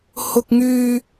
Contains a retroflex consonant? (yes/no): no